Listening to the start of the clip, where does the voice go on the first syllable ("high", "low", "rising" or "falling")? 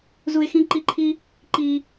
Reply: high